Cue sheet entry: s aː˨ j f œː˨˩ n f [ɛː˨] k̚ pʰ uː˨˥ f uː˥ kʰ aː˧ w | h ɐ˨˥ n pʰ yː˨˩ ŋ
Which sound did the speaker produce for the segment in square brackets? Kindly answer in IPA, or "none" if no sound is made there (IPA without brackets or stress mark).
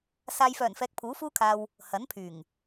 ɛː˨